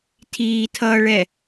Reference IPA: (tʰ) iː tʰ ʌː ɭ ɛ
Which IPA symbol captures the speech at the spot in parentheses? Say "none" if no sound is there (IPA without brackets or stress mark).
tʰ